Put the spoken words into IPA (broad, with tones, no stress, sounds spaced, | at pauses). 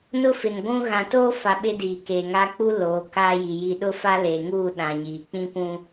n ʊ˦ f ɪ˨ n ɡʷ ũ˦ ɣ ã˨ t oː˦ f a˨ ɓ ɪ˦ d iː˨ k eː˨ ŋ a˦ k͡p u˦ l oː˨˦ k aː˦ j i˨ j i˨ ɗ ʊ˦ f a˦ l eː˨ ŋ uː˦˨ ɗ ã˨ ɲ iː˨ k͡p ĩ˦ p ũ˦